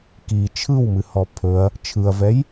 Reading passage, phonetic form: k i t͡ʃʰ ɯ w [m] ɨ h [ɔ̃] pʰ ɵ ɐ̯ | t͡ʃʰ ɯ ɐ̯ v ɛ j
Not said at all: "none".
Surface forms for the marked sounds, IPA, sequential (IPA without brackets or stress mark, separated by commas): m, ɔ